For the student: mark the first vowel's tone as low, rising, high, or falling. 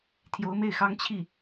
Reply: rising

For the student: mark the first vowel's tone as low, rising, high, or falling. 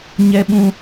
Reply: high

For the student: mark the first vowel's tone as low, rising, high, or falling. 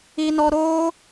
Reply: high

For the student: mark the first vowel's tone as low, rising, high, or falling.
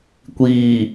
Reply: low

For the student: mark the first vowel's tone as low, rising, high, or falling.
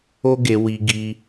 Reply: high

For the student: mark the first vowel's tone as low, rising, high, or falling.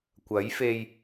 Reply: rising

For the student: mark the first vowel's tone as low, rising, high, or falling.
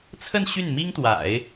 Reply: falling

